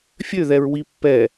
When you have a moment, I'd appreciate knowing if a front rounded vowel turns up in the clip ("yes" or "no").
yes